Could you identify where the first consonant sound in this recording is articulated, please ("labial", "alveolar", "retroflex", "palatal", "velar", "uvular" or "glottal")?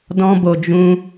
alveolar